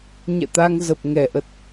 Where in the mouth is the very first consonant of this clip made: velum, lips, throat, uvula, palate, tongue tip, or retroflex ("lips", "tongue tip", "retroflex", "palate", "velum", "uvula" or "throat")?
palate